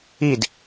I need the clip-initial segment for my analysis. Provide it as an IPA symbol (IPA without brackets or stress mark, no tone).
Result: i